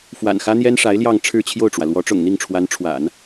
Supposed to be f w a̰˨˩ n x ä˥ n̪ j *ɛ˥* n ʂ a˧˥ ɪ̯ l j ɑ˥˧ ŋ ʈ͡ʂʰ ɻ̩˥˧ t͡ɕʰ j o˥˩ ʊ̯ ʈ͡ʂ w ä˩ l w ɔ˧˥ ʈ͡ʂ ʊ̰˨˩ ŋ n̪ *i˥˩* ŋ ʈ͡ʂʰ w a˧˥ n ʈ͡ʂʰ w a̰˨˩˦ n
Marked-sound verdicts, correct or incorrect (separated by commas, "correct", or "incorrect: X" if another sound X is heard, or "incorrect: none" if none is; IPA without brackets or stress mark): correct, correct